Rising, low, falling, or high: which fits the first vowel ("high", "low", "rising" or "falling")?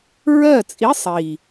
falling